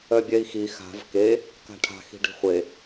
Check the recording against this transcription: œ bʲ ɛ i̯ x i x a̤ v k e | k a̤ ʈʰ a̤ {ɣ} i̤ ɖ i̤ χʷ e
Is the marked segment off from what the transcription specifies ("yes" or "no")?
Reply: yes